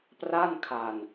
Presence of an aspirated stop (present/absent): present